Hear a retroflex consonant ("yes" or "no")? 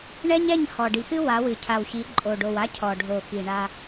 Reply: yes